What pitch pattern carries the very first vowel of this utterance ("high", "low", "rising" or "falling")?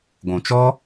low